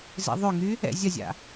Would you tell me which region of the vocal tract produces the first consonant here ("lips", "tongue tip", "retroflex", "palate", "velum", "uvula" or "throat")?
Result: tongue tip